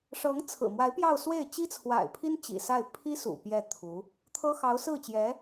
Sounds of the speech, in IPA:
ʂɤ˧˥ŋ t͡sʰɹ̩˨˩mwa˧˥ɪ̯ pjɑ˥˧ʊ̯swe˥˩ɪ̯ t͡ɕi˥t͡sʰwa̰˨˩ɪ̯pʰi˥n t͡ɕḭ˨˩sa˥˩ɪ̯ pʰi˥sṵ˨˩ pjɛ˥˩t̪ʰu˧˥ | t̪ʰɤ˥ xɑ˧˥ʊ̯sɹ̩˥˩t͡ɕjɛ˧˥

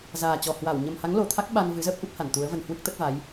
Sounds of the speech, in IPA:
zaː˨˩t͡ɕɔ˨˩hwa˧˩w ɲə˨˩mha˨˦ŋlo˨˩t̪ʰa˦˥k̚ ɓa˧n vɨ˨˦zəː˦˥p̚ ʔu˦˥p̚ha˧˩nt̪u˨˦ə̯və˧n hwɨ˦˥k̚t̪ə˦˥t̚va˨˦j

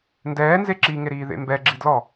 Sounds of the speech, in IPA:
ndɛːnze ǁiŋeɾiːðḛ mbɛɡ͡ǁi dlɔ

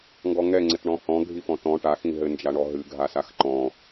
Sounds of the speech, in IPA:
ŋɡɔŋɛ ŋ͡ǀɘtɳɔ̃hɔ̃ ɡʱifɔ̃tɔ̃ ʈa xĩɦɘnd͡ʒaɳɔ ɦɨ ɡʱasaxǃɔ̃

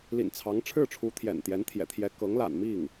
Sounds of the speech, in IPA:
lḭ˨˩nt͡sʰɑ˧˥ŋʈ͡ʂʰɻ̩˥˩ʈ͡ʂʰu˧˥ t̪ʰjɛ̰˨˩nt̪jɛ˧˥nt̪ʰjɛ̰˨˩ t̪ʰjɛ˧˥kɤ˧˥ŋla̰˨˩n mi˥˩ŋ

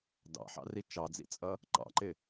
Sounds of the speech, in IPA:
dɑ̰ħɑ̰ri t͡ʃɑd͡zḭt͡sʼʌ | ǃɑ̰ǃɪ

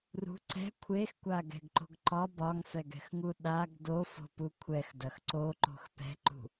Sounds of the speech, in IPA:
rṳ ǀɛ̤ kʷʰexkʷaɡɛ̤ɡǃo̤ɡ ǃɒ bɒŋfɛɡɛ̤xŋu ɗaɡ dofo̤pu kʷʰɛxdɐx ǀoǃo̤x pɛ̤ǃṳ

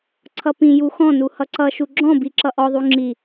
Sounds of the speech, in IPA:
ǀʰʌpĩju xɔ̃nu hʌǀʌʃu ɡ͡ǁɔ̃ biǁʌʔɔðˤu ŋ͡ǁi

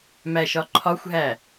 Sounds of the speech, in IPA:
mæʃɒǃʰɒxʷɦæ

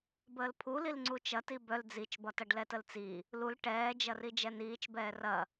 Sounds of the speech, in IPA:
bəːlpʰulil ŋ͡ǀut͡ʃɐti bœl d͡zit͡ʃbɒtɐɖ lɛtəlt͡si | lul ʈɛːd͡ʒɐri d͡ʒɛniːt͡ʃ bɛːrɐ

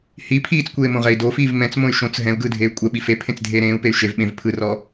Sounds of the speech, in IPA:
hi pʰiːt͡skʷeː mõʁɛi̯dofiːv mɛ̃t͡smõy̯ ʃõt͡s ɦɛ̃u̯ɡɯː dʱeːy̯kʷʼɛɓi fepʰẽt͡s dʱeːɾẽːu̯pey̯ ʃev ɓẽv pʰɯrɔ

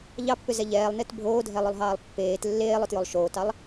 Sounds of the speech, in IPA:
ʎɑpːʏzɛ ʎɛːlˠnet bʱoːdʱɛlˠolˠɦɑːlˠ pːeːt lːeːlˠotjolˠ ʃoːtɑlˠ

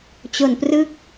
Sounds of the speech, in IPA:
t͡ɕo˨˩nprɯ˦˥k̚

